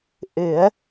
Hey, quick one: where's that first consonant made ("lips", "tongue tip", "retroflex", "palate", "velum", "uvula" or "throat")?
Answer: throat